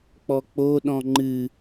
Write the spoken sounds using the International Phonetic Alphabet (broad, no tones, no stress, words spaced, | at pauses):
k͡pɔk͡po ɗɔ̃ŋ͡ǃɨ